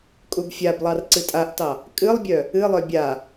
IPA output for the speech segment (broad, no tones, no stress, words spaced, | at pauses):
kʼubfʲablˠɑr ǀɨtʼaʔtɑ | kʼɨlˠbʲœ | ɨlˠœ bʲa